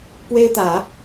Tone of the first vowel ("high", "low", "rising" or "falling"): high